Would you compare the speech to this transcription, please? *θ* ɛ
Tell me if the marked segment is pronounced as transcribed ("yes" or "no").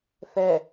yes